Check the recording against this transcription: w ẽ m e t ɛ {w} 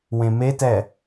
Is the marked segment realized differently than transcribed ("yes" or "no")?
yes